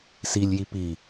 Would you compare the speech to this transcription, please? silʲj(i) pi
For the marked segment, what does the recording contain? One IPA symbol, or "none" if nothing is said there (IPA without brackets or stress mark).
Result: i